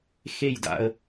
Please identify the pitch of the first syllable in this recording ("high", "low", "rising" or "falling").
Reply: falling